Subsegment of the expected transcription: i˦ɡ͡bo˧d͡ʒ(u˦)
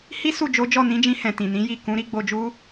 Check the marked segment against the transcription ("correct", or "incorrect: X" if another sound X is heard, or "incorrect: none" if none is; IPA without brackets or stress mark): correct